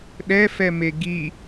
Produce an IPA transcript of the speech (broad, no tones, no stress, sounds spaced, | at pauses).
ɗ ɛ f ɛ m e ɡ i